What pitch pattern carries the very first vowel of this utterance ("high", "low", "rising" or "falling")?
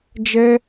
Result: high